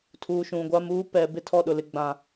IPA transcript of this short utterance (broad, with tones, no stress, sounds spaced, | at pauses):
tʰ uː˨ ʃ ũ˨ ɡʷ a˦ m uː˦ p ɛ˨ b ɪ˦ tʰ ɔ˦˨ ɗ ʊ˨ l ɪ˨ ɡ͡b ã˨